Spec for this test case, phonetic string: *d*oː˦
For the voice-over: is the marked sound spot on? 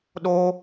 no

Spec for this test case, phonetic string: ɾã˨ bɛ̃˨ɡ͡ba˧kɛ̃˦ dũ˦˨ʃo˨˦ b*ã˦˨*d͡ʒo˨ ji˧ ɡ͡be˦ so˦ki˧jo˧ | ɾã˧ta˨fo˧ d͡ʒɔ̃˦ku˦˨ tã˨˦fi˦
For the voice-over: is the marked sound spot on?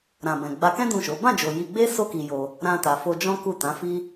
yes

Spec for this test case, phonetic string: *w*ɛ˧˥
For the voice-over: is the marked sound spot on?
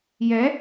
no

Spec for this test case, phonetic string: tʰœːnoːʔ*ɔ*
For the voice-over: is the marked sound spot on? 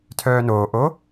no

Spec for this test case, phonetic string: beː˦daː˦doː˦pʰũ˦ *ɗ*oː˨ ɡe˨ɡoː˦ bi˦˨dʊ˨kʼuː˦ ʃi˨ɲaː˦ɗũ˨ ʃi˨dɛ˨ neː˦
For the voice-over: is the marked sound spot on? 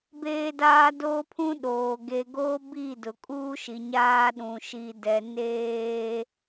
yes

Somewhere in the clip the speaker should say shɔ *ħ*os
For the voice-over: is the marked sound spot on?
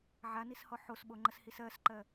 yes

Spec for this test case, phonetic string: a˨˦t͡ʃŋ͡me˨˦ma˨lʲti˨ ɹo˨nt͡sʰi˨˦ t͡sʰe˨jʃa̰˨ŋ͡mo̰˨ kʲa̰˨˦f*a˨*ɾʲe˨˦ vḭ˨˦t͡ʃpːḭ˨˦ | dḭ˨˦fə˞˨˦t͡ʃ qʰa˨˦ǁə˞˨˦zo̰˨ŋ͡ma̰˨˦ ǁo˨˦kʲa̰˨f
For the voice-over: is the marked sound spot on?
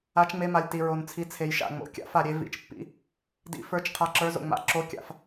yes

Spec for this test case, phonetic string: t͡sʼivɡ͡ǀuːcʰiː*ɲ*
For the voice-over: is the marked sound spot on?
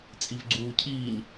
yes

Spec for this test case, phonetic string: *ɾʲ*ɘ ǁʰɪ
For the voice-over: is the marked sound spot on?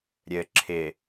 yes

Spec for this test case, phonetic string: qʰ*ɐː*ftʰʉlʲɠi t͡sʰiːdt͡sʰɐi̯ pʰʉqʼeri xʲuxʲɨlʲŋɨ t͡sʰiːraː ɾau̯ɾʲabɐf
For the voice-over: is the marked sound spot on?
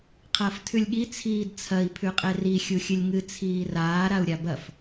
yes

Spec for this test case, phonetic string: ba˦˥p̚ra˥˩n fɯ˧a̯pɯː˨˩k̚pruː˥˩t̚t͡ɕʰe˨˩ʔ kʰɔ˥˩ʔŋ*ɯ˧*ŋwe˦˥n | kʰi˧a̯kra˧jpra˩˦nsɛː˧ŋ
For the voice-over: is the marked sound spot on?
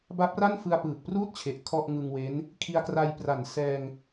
yes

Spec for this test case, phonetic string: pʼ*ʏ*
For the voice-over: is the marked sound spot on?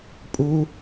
no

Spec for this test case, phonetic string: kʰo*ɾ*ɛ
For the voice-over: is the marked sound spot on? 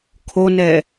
no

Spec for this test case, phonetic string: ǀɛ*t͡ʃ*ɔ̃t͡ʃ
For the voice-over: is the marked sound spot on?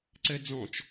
no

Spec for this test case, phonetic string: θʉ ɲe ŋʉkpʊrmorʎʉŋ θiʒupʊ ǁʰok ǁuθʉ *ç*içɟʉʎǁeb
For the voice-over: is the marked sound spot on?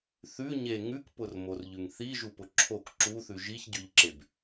no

